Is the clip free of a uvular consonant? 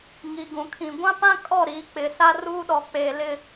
yes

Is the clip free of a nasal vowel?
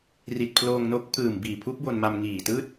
yes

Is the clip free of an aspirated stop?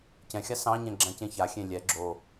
yes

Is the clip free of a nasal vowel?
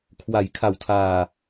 yes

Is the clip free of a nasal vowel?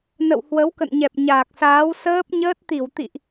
yes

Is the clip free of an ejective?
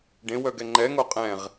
no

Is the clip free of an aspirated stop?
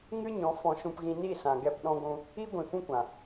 yes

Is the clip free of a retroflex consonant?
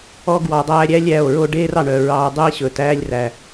no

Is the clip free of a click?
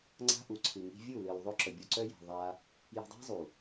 no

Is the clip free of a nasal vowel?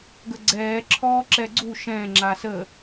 no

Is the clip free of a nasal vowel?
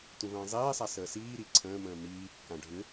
no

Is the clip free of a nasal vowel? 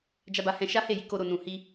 no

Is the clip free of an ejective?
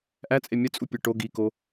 no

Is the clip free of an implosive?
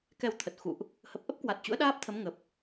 no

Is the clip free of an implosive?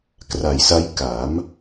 yes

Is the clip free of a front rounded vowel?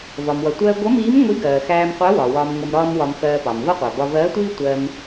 yes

